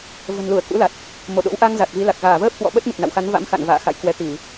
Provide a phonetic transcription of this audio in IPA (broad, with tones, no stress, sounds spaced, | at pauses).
v ə̤˨˩ n l u˧˩ ə̯ k ṵ˧˥ l a˨˩ t̚ | m o˧˩ ɗ o̰˧˥ w ʔ a˧ ŋ z a˨˩ t̚ v i˨˦ l a˨˩ k̚ ɣ aː˧˩ v əː˦˥ p̚ k w ɔ̰˧˨ ɓ ə˦˥ t̚ m ɨ˨˩ t̚ n a̰˧˨ w x a˨˦ n v a̰˧˥ m x a̰˧˨ n v a̰ː˧˨ x a̰˧˨ j k w ɛ˨˦ t̪ i˧˩˨